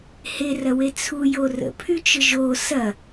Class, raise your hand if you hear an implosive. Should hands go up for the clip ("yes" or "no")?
no